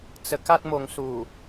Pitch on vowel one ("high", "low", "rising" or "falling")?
low